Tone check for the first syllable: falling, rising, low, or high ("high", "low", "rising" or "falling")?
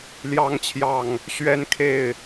rising